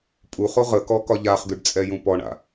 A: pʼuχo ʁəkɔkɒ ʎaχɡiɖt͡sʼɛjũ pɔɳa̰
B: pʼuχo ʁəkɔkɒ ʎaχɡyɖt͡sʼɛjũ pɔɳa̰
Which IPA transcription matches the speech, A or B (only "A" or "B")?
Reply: B